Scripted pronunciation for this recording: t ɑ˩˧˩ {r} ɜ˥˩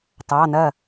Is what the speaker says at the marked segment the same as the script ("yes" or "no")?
no